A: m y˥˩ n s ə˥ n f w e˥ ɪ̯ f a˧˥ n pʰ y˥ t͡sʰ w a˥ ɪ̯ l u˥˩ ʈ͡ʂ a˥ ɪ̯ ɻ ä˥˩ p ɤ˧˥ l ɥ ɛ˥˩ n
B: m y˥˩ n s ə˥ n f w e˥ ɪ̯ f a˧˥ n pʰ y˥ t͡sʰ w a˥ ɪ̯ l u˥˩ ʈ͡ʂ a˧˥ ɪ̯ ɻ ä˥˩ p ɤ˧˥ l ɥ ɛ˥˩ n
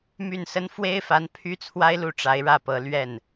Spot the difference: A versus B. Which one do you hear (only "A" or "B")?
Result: B